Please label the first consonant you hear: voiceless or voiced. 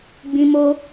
voiced